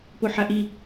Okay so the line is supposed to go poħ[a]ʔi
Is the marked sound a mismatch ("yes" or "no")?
no